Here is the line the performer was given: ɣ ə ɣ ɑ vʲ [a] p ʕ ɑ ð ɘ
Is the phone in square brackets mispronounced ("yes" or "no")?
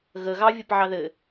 yes